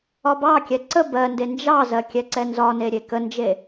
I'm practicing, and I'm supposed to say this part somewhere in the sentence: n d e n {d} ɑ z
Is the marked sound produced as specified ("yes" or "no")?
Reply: no